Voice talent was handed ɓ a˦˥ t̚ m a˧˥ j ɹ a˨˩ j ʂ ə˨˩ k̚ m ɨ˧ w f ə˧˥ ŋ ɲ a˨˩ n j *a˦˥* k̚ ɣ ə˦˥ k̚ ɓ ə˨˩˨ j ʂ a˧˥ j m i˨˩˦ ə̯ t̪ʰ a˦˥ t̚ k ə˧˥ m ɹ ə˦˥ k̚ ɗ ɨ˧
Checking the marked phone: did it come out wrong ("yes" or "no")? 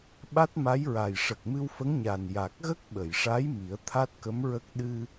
yes